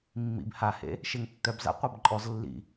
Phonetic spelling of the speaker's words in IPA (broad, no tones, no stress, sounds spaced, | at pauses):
mː ḭ b h a h ḛ | ʃ e ŋ tː œ b z a̰ qʷ a b ǃʼ ɔ z lː ḭ